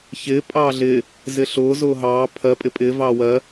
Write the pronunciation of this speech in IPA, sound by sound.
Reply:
çɪː pʼɑːɮɪ | zɪɬʊː zʊːɦɑː pʰɜ pʼɪpʼɪː vɑːwɜ

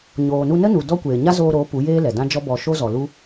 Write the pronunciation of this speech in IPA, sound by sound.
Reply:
ɲoː˨nu˧nə˦nu˨ dɔ˦kʷeː˨ ɲa˦zoː˧ɾo˨˦ pu˨˦jeː˦ lɛ˨dã˦d͡ʒɔ˦bɔ˧ ʃo˦zɔ˨lu˦

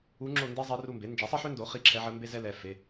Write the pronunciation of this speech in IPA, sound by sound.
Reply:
u˧˥ŋ͡ǁo˦˨ nde˥ zˤɛ˧˥ru˦˨mbe˩˥ nd͡ʒɛ˩˥sˤe˥ħø˥ndo˩˥ χi˦˨ǁʰɛ˧˥ʕə˧˥ mbe˥zɛ˥lɛ˩˧˩ fe˩˧˩

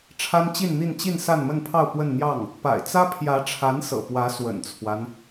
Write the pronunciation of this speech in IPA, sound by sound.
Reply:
ʈ͡ʂʰa˥nt͡ɕi˥˧nn̪i˥˧nt͡ɕi˥˧n sa˥˧nmə˥˧npʰɑ˥˧ʊ̯ pwə˥˧nn̪jɑ˥˩ŋ | pa̰˨˩ɪ̯t͡sä˥pʰjä˧˥ʈ͡ʂʰa˧˥n sɤ̰˨˩pwä˧˥ swə̰˨˩nt͡sʰwa˦n

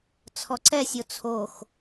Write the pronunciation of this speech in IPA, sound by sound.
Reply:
t͡sʰɔǀɛsʲo t͡sʰox

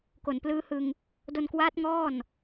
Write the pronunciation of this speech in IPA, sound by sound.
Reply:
ko˨˩n plɯː˦˥hɯ˧ŋ | do˧nkwaː˦˥t̚ ŋɔː˥˩n

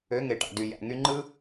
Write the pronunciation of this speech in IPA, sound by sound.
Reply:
ø˨˦ŋe˨ʈɑ̰˨dy˨ jæ̰˨ŋy˧ŋ͡ǃɯ˦

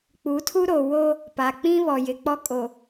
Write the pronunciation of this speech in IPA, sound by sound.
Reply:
k͡pu˨˦tʰu˦ɾo˨ wo˦ | pa˨k͡pĩ˦βɔ˨ jɪ˨k͡pɔ˦kʼo˨

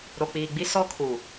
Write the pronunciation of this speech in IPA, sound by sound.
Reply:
ɾo˨k͡piː˨ɡ͡bi˦ sɔ˦kʰu˨

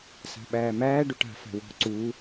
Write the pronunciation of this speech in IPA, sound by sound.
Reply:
sa̤ɓæːmæː ɖuʈa̤ fa̤wɔ̤ ǀu

